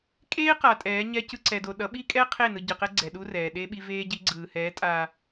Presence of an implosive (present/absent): present